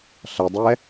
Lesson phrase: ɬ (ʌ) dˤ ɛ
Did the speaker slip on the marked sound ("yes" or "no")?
no